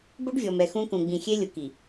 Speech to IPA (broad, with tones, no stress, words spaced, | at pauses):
bo˦ɖvʲɔ˨mɛ˨ xũ˦kũ˨ ɡ͡bĩ˨xʲe˦lʲʊ˨ki˨